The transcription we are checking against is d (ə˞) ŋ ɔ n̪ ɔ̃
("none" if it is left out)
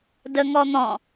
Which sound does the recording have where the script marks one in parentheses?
ə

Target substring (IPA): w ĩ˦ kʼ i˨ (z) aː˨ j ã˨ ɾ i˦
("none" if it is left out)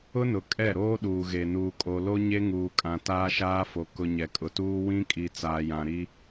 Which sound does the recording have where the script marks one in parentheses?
t͡s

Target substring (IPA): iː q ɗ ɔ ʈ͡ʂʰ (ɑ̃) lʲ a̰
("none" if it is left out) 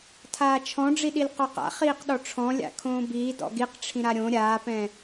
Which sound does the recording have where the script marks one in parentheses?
ɔ̃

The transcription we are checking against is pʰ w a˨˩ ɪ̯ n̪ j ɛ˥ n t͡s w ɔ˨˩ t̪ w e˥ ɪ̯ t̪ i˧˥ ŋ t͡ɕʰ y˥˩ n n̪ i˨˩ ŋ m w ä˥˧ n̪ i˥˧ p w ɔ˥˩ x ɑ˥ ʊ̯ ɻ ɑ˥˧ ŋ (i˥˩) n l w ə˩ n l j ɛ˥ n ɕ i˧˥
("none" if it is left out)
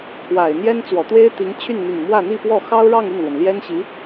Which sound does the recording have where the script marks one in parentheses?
y˥˩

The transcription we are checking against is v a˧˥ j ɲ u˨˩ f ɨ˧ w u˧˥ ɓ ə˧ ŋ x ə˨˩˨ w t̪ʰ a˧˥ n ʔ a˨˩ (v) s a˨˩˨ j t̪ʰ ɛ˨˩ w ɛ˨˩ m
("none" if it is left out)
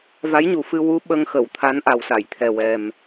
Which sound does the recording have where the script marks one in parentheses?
w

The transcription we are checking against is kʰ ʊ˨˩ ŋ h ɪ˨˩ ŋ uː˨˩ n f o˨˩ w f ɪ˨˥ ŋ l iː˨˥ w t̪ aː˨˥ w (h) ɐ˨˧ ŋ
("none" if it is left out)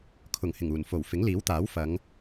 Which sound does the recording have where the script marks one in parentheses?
f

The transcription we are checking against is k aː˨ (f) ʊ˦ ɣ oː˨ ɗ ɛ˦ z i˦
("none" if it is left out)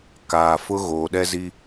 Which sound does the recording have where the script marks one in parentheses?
f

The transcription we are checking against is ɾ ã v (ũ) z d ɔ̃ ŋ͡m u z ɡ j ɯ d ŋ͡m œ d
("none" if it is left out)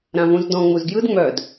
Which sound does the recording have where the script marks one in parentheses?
ũ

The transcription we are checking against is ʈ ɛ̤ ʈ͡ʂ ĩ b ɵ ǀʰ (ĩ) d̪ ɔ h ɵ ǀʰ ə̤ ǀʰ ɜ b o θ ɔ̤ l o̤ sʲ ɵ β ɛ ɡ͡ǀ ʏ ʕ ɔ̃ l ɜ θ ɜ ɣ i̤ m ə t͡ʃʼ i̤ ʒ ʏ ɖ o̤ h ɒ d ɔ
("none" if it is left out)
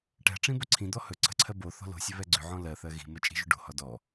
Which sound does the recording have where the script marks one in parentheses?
ĩ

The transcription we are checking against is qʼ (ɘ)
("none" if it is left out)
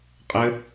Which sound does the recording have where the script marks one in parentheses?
ɘ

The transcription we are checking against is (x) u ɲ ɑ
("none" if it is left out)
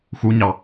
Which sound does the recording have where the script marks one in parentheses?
x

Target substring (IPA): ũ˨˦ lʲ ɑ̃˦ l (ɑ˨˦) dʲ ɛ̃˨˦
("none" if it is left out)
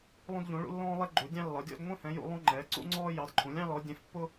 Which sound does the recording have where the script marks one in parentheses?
ɔ˨˦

